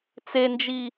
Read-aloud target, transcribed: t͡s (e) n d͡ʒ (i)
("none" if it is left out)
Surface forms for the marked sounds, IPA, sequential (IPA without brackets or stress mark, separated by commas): e, i